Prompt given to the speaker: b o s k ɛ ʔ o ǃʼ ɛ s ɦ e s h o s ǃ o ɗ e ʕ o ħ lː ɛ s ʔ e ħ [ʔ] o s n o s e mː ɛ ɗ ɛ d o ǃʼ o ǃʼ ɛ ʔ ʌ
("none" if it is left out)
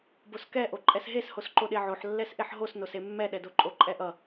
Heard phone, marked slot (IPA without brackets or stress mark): ɦ